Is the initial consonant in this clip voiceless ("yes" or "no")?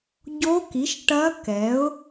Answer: no